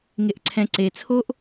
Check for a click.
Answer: present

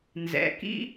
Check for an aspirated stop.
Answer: absent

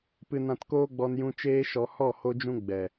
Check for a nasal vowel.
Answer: present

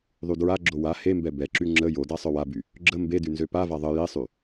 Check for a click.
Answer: present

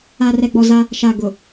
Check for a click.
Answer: absent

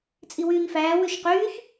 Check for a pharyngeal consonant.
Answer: absent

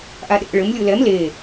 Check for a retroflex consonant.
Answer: present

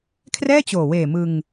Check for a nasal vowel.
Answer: absent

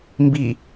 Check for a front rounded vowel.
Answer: absent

